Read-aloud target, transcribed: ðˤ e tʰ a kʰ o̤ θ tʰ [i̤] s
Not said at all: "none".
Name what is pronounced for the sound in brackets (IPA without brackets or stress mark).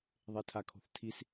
i